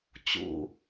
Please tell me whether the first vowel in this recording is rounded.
yes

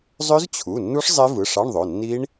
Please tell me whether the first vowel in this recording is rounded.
yes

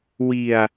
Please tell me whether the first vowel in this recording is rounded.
no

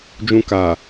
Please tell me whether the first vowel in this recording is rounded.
yes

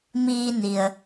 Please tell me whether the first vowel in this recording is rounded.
no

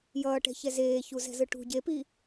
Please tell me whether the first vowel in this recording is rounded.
no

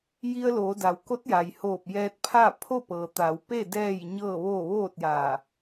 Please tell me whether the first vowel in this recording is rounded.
no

